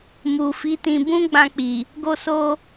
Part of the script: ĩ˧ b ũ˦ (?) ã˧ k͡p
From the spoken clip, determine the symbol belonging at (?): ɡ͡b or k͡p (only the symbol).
ɡ͡b